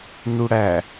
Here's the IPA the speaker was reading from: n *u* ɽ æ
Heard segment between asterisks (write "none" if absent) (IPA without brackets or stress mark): u